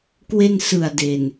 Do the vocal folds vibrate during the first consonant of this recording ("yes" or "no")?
no